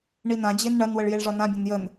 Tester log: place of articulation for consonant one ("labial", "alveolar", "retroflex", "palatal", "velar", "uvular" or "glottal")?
retroflex